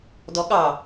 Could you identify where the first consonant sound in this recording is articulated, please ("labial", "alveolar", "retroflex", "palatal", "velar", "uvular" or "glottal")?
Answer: alveolar